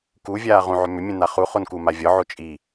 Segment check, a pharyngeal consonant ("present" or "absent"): present